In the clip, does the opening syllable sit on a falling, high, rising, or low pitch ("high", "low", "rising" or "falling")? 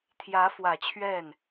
rising